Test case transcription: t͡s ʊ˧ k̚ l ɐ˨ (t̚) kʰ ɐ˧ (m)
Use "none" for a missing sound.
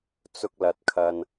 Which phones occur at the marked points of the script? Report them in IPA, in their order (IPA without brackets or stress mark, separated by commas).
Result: t̚, n